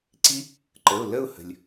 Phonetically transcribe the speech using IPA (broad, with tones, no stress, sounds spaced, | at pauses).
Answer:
ǀ i˦˥ | ǃ ə˩˧˩ ʊ̯ l ə˥˧ ʊ̯ h ə̤˩ lʲ